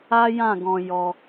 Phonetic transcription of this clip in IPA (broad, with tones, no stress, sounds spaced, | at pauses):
a˦ j ã˦˨ ɡ ɔ̃˧ j ɔ˧